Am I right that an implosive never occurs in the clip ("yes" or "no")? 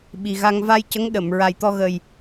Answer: no